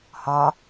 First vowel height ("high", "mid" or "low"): low